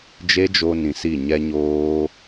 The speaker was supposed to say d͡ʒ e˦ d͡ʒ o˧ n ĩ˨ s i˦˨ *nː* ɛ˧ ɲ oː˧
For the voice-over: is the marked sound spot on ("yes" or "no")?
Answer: no